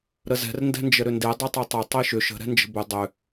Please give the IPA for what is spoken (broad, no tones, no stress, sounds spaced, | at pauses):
ɾ ə z ɛ̤ r n d ɛ̤ n d͡ʒ ə ɾ ʏ n d e dˤ e tˤ e tˤ ɛ tˤ e ʃ ʏ ʃ ə̤ ɾ ɛ̤ n d͡ʒ ə̤ b ʏ dˤ ʏ